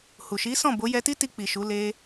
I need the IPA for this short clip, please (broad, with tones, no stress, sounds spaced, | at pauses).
h u˨ ʃ i˨˦ s ɔ̃˦˨ b o˨˦ j ɛ˧ t i˦ t i˧ k͡p i˨ ʃ u˨˦ l e˦